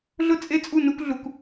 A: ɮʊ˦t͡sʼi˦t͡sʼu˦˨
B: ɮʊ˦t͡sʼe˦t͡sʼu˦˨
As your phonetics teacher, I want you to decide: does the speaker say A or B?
B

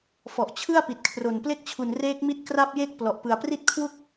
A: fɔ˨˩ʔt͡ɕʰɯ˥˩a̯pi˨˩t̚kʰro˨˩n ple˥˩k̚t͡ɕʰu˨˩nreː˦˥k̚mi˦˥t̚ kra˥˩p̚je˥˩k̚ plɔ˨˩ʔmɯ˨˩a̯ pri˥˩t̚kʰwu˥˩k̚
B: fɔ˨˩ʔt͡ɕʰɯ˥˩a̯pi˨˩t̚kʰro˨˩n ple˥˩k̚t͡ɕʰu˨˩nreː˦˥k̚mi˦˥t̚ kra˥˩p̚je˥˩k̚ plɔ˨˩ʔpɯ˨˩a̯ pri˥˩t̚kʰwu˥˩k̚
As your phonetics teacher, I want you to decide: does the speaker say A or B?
B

